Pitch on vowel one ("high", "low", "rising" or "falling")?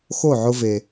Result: falling